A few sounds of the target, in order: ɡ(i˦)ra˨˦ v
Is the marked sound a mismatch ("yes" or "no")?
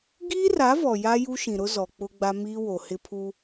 yes